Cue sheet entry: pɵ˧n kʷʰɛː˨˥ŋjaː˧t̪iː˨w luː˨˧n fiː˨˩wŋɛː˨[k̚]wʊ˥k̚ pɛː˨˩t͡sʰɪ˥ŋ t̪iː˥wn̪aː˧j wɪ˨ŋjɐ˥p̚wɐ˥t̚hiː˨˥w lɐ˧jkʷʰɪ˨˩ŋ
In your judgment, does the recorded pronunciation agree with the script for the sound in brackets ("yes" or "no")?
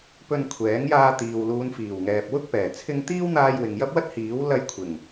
no